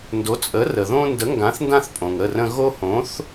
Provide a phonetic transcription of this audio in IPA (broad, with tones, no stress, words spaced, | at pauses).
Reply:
ndo˩˥t͡sʼə˩˥ rə˩ðõ˦ ndə˩˥ŋɡã˩˥θndã˦θ pʼõ˩ŋə˩˧˩rə̃˦ ɣo˦hõ˩˥θ